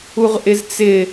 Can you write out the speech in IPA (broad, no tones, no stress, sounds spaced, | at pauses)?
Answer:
u ʁ ʔ ɪ z t͡s ɪ